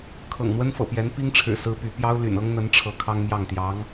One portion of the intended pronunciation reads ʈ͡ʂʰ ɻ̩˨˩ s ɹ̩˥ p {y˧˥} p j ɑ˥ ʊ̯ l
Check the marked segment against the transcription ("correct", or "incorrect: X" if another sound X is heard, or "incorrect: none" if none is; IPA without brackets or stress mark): correct